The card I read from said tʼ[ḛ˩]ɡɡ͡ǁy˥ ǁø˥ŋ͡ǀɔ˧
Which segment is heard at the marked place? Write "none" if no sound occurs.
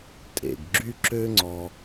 ḛ˩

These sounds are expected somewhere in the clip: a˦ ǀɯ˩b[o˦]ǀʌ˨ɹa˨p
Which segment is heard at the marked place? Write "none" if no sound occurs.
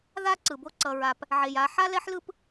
o˦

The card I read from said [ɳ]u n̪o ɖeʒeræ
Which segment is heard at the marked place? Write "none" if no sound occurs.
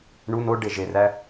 ɳ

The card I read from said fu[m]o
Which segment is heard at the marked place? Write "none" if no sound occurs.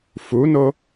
n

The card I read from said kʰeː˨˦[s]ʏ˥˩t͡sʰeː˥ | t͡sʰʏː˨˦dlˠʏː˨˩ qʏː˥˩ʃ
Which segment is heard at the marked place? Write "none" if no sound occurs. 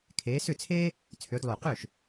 s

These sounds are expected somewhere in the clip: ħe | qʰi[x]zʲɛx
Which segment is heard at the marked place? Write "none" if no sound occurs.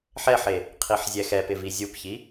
ħ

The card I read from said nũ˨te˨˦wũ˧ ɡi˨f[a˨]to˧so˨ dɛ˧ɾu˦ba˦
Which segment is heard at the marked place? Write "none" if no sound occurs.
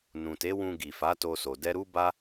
a˨˦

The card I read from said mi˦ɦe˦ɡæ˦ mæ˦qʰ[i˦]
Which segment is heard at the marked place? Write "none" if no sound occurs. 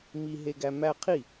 i˦˨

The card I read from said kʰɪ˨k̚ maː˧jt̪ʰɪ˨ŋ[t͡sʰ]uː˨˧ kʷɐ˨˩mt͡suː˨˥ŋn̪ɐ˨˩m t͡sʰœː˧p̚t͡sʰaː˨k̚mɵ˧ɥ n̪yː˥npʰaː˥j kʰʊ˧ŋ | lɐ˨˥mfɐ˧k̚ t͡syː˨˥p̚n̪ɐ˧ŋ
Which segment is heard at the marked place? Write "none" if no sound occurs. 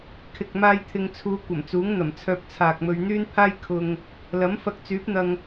t͡sʰ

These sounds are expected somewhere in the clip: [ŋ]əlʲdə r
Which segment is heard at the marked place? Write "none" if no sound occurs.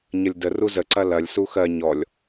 ɲ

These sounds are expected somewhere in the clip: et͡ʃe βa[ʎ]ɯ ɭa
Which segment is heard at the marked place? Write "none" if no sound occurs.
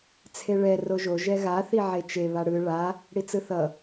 ɽ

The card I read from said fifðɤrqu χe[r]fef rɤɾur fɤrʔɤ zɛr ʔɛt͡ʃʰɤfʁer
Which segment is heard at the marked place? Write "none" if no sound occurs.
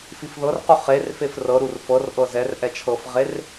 r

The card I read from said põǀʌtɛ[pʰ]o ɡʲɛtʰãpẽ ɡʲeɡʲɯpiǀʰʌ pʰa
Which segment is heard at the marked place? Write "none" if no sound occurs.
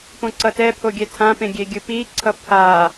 pʰ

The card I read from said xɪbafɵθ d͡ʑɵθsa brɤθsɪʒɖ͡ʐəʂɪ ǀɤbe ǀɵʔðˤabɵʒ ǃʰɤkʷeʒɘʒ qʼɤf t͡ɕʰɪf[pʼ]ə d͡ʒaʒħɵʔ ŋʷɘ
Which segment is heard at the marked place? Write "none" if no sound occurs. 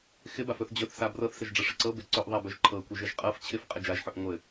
qʼ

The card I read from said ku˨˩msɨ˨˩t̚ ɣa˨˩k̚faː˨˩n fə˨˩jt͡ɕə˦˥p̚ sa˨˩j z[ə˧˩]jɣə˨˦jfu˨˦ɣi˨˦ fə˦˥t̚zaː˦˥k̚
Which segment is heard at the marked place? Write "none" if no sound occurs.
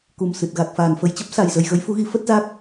ə˨˩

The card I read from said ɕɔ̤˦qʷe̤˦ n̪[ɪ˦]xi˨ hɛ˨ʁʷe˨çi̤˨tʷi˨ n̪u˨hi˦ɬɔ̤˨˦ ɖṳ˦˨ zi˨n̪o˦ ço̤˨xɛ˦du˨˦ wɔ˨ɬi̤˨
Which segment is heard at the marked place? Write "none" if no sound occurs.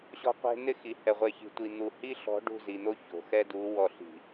ɪ˦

